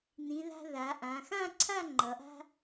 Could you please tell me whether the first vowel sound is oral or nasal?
nasal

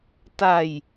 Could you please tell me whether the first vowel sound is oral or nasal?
oral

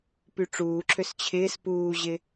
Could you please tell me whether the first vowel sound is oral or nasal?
oral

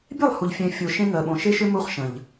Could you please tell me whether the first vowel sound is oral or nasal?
oral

